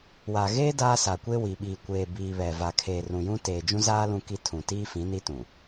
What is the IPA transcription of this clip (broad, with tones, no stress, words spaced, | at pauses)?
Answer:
wa˨ɣeː˦ daː˦sa˨kʷe˦ wi˨ɓiː˨ kʷeː˨biː˨ βɛ˨ va˨kʰeː˨ rũ˨jũ˦ teː˨d͡ʒũ˦zaː˦ lũ˦ki˦ tʰũ˨ tiː˦fĩ˨˦ ni˦tũ˨